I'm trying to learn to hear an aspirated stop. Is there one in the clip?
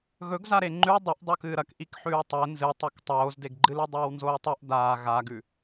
no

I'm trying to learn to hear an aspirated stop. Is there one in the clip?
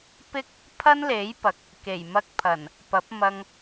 yes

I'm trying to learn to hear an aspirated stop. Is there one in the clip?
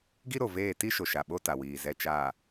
no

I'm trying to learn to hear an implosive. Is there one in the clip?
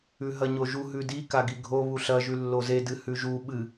yes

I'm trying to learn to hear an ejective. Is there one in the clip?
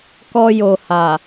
no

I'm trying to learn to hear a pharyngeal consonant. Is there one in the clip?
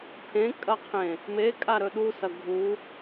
no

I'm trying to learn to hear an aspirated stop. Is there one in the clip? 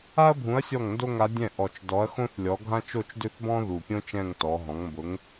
no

